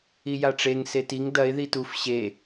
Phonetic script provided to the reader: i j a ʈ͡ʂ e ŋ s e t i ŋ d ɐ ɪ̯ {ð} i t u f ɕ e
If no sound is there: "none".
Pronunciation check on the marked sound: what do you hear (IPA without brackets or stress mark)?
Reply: ð